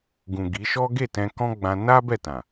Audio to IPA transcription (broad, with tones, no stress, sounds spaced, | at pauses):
ɡ ũ˨ ɡ i˨˦ ʃ ɔ˦ ɡ e˦˨ t ɛ̃˧ k ɔ̃˦ ɡ͡b ã˧ n a˦ b ɛ˦˨ t ã˨